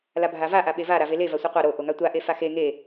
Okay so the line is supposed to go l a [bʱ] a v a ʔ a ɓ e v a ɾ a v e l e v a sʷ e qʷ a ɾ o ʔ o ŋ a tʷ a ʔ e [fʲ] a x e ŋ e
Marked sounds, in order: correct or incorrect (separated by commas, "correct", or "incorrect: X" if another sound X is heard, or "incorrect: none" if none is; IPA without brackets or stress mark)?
correct, incorrect: f